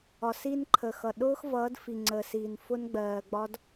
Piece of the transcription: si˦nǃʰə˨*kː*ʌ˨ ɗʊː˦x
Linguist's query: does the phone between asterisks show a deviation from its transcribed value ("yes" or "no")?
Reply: yes